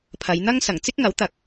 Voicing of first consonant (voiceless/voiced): voiceless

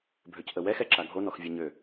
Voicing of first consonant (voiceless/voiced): voiced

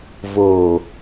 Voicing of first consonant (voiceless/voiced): voiced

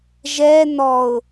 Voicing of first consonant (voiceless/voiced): voiced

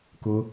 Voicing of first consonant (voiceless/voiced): voiceless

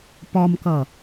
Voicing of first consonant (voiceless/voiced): voiceless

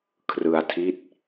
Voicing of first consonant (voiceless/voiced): voiceless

